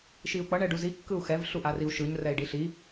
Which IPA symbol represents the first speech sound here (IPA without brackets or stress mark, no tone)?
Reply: ʃ